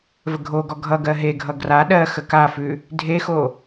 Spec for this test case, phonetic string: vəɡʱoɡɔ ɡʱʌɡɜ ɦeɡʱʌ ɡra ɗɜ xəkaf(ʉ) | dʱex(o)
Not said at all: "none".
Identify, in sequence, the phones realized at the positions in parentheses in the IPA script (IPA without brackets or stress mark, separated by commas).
ʉ, o